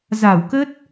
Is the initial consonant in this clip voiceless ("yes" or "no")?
no